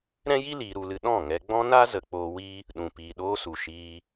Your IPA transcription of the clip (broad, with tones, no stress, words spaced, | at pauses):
ɾɛ̃˦ji˦ liː˧ɾu˧lɨ˧ ɗɔ̃˦˨ŋɛ˧ɡ͡bɔ̃˦na˦ zə˨k͡poː˧wi˦ | ɗũ˨piː˨ɗoː˦ su˨ʃiː˧